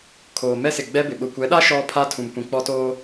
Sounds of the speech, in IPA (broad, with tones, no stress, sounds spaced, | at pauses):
kʰ oː˨ m ɛ˦ s ɪ˨ ɡ͡b ɛ˦ b ɪ˨ ɓ ʊ˨ kʷ ɛ˨˦ ɗ a˦ ʃ ɔ˦ pʰ a˦ tʰ ũ˨ m kʷ ĩ˨ k͡p ɔ˦ t oː˦